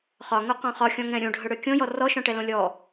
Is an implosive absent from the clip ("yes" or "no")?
yes